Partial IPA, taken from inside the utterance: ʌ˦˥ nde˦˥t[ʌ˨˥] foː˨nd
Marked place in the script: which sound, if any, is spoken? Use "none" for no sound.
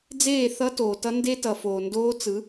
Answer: ʌ˨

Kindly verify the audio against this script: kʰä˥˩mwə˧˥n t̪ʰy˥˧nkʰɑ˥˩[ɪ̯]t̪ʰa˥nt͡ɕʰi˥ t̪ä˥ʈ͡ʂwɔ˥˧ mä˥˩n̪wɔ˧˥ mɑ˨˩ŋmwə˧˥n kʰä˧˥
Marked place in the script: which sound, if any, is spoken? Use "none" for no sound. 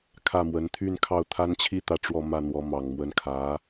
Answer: ʊ̯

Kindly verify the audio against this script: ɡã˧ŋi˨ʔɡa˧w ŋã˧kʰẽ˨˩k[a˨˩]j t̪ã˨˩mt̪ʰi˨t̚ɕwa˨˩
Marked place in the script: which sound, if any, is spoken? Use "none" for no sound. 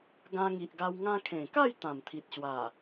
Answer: a˥˧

